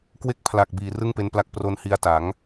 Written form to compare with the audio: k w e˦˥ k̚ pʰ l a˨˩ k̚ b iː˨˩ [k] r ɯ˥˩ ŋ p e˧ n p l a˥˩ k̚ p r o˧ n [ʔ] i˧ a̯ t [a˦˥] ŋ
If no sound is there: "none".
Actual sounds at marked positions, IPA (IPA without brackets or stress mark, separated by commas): none, h, a˩˦